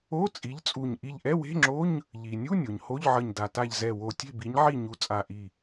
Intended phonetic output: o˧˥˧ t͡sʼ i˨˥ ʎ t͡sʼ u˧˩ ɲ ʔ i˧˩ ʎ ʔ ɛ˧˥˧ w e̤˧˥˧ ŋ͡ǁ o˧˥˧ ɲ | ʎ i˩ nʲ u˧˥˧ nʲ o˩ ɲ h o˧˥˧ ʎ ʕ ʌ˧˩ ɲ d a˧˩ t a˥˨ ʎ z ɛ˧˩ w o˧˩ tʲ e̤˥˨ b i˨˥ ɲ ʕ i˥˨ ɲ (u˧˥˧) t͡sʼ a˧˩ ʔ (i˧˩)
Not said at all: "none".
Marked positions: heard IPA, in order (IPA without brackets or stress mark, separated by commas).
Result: u˨˥, i˧˩